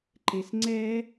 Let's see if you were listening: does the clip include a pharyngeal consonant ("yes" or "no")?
no